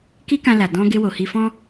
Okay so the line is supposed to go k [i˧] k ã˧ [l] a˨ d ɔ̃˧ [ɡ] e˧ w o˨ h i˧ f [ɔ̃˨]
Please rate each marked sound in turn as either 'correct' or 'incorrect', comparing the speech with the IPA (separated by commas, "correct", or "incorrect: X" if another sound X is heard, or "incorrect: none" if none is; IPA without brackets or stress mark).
incorrect: i˦, correct, correct, incorrect: ɔ̃˧